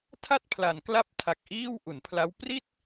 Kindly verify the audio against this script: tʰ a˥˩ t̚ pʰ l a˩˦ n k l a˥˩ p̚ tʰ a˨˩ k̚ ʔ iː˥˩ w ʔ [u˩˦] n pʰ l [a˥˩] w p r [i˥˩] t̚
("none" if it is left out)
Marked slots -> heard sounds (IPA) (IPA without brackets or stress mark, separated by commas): u˩˦, a˦˥, i˥˩